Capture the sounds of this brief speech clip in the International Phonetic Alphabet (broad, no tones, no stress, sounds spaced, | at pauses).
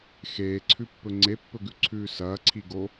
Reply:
x eː ǀʰ ʉ pː ɵ ŋ͡ǀ e pː ɵ ɡ ʉ ǀʰ ʉː s ɐː ǀʰ i ɡ o